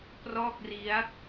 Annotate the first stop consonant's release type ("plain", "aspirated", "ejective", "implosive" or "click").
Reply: plain